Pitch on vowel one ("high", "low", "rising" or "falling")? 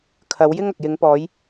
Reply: rising